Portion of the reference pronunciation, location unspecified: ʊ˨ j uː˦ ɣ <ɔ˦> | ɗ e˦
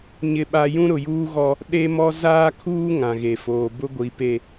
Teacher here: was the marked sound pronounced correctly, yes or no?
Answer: yes